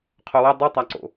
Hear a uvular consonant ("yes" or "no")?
yes